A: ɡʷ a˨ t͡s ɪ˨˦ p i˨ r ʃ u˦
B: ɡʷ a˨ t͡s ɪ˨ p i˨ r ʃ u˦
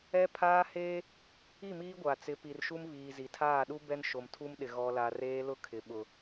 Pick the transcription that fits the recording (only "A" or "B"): A